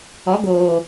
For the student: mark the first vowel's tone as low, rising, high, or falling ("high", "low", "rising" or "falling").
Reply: rising